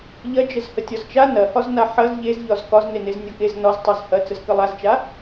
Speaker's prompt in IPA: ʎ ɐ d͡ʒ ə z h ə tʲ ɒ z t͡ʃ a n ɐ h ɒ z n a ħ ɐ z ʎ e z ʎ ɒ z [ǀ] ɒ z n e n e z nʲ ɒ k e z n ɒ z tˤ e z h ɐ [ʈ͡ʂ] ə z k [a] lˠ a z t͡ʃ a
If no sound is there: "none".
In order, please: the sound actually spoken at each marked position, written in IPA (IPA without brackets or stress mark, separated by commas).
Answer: k, t͡s, ə